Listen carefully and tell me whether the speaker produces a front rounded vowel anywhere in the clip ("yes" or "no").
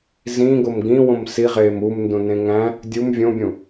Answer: no